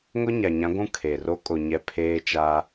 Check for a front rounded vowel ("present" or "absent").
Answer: absent